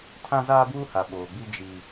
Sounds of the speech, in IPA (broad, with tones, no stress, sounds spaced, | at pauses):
tʰ ã˦ z aː˦ b uː˦ h a˨ ɓ oː˨ ɡ͡b i˦ d͡ʒ i˦